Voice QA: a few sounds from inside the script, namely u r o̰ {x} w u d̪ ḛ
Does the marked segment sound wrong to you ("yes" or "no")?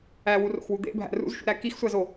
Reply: no